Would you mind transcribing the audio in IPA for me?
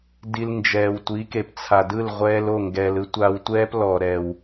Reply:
di˧lnd͡ʒɛː˨w tʷi˨˦ke˨p t͡sʰa˨dɯ˦˨l ʁʷɛː˧lo˦˨ ŋɡɛː˨lɯ˦ tʷaː˧wtʷɛː˦plɔː˨ ɾɛ˨w

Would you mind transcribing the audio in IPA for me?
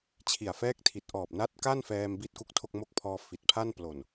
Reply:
t͡ɕʰi˨˩a̯fɛː˦˥k̚tʰi˨˩t̚ ʔɔː˨˩p̚na˦˥t̚ka˥˩nfɛː˧m bi˥˩t̚ku˥˩k̚tʰo˥˩k̚ mo˦˥k̚pʰɔː˧ fi˨˩t̚pʰa˥˩n plo˨˩n

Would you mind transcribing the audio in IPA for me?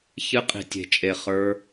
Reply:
çɨ˧qʼi̤˨tʲe̤˨t͡ʃʼe˨ χə˞˧

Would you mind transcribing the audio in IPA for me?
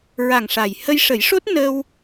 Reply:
ɹa˨˩ŋ ʂa˨˩j hə˧jʂə˨˩˦jʂo˦˥t̚ nə˧w

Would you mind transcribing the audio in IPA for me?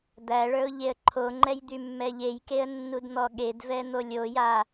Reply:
d̪æɭə˞ʊ̯ ʎeə̯ǃʰoŋ͡ǃɛj d̪ymːɛʎejkeə̯ nːudn̪ɔɠedvɛ n̪olʲoja

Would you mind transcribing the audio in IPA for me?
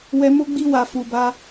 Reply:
wɛ˦ mo˦ɡ͡bi˦wa˧ fu˧ba˦

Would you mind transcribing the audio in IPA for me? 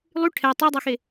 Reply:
lˠy ʈʰɛ tˤɛdˤaxe

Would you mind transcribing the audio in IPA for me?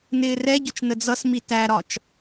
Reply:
nɪːrɛɟʊt͡ʃ nəd͡zʌsmi tæɾɒt͡ʃ

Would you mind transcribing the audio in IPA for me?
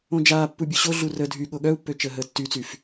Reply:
õd͡ʒaːpːu bʲuɕoɮu rə dʱyɠo ɠœu̯pːø t͡ʃəːɦəːtːyt͡syf

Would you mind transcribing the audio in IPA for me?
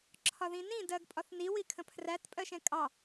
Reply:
ǁʰɒðĩnĩ dɜɡpʼɒθni wikʰə̃pʰræt pʼɜʃɛ̃kʼɑ

